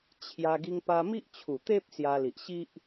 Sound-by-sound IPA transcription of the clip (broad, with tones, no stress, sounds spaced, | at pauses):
t͡ɕʰ j a˧ ɡ i˧ ŋ p a˧ m i˦ ʔ t͡ɕʰ u˨˩ t̪ e˦ p̚ s j a˧ l i˨ ʔ ɕ i˦ ʔ